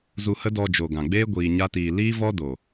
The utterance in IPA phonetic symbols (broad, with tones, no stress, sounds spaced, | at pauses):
z u˧ h ə˦ d ɔ˧ d͡ʒ o˨ ɡ ã˨ ɡ͡b eː˦ ɡʷ iː˧ ɲ a˦ t iː˧ l iː˦ v ɔ˦ d o˨